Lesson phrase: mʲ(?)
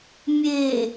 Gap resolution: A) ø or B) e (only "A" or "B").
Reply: B